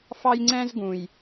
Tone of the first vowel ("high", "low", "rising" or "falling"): high